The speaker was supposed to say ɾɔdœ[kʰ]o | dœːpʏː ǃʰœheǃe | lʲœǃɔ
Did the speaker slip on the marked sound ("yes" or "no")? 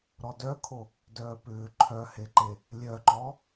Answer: no